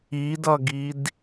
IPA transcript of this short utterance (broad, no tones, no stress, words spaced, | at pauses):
idʌɡid